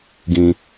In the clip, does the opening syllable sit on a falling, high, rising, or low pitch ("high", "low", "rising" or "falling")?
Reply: low